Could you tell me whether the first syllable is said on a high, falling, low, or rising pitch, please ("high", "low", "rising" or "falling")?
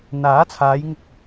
rising